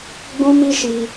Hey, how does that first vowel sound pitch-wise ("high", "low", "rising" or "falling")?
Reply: high